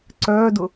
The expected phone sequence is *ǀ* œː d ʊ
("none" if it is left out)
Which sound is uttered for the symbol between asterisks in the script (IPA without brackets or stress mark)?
ǀ